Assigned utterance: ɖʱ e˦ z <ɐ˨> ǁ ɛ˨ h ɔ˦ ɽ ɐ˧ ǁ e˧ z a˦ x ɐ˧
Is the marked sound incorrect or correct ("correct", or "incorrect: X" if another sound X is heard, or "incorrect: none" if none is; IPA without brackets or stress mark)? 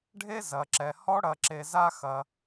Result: correct